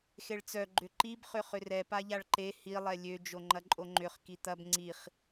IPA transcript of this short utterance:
xeɭt͡sœ ɡ͡ǃʏǃib χʏχʏrɛ paʎaɭǃe hi lˠɛlʲø d͡ʒoŋ͡ǃɐǃʼoŋ͡ǃʏχ kit̪ɐb ŋ͡ǀiχ

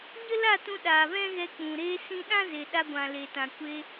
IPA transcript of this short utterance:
ɲə˦la˦˨tũ˧ ɗaː˨vɛ̃˦ɣɛ˧k͡pũ˨ ɾeː˧sĩ˧ɗã˦ ze˨ɗa˧ɡʷã˨ le˨tã˨ kʷe˧

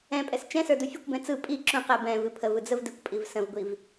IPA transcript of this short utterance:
ɛ̃pʼɛs t͡ʃɛ̃sə˞ dufʲəkʷbɛ̃ t͡sɯ pʼi ǁũqɛ bɛ̃ vɨpʰəvɯ d͡zəvdɨkʷpʼiv sə̃vɡʷiv

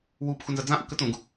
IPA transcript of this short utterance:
wuːpxunzɐ d͡zãʔu kətũːɡ

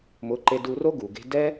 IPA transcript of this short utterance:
mʊ˨˦ǃe˧ du˧ro˦ ɡu˨ɡe̤˦ dɛ˦

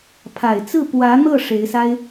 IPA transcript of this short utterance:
pʰa˨˩ɪ̯t͡sɹ̩˥˩ pwä˧˥n̪ɤ˥˩ ʂe˧˥ɪ̯sa˥ɪ̯

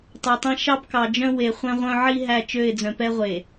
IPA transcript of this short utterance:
tˤɛ˨tˤɛ̃˦ ʃɑ˦bkɑ˨d͡ʒœ̃˦ we˨ χʷɛ̃˦ʁʷœ̃˦ ʕi˦ ɦæ˦˨t͡ʃø˦˨ɪ̯d͡zœ̃˨pɛ˦ ʁʷe˨

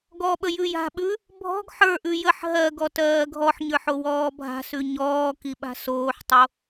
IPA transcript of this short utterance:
ɡɔɓə jʉja̤ɓʉ | bʱɔ̤ɡ ħə˞ʔʉ jəħ ɦɜ ɡɔtɜːɡʱɔħɲə˞ħ owɔːbʱa̤sʉ ɲɔːki ɓa̤soːħtˤo

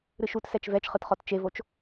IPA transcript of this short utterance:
ɾɨʃutsɛt͡ʃ vɛt͡ʃχɯtχɔt t͡ʃevot͡ʃ

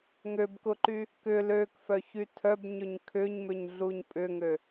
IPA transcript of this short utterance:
ŋøbkʊǃy | kʏ løkfœçy tʰœbɲøɲ kʰʏɲmʏɲɮuɲ pʼʏŋø

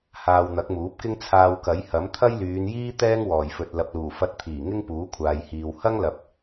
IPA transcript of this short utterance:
haː˧wn̪ɐ˨˥k̚muː˨˥p̚kɪ˥ŋ t͡sʰaː˧wkɐ˨˥jhɐ˨˥m t̪ʰɐ˥jlyː˨˧njiː˥ t̪ɛː˥ŋwɔː˨˩jfɵ˨t̚ lɐ˨p̚luː˨˩ fɐ˧t̚t̪ʰiː˨˩ ŋɪ˥ŋpuː˨˥ kʷʰaː˨jhiː˨w hɐ˥ŋlɐ˨p̚

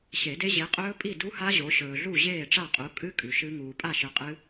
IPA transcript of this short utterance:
ɕe˨˩˦de˦˥ ʑi˨˦qʼɵː˦˥ pʼi˥˨du˦˥ha˦˥ ʑo˨˦ ɕɵː˨ɮu˥˨ ʑeː˥˨ʈ͡ʂa˥˨qʼu˨˦ kʼɨ˦˥ kʼʉ˨ʃɨ˦˥ ŋuː˨pʼa˥˨ʃɨ˨˦ qʼɨ˦˥

